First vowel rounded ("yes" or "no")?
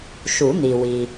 yes